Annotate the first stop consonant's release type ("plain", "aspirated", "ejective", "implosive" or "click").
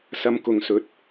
plain